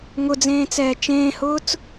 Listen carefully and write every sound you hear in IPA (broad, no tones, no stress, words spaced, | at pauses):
ŋʊd͡zẽːt͡sɛː t͡ʃẽːhʊːt͡s